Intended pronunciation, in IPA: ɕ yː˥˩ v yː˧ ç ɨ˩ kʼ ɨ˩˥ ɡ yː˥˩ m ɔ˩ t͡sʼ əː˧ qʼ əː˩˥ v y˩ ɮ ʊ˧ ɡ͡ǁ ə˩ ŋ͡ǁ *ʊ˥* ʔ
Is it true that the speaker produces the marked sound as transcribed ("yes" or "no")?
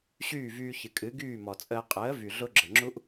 no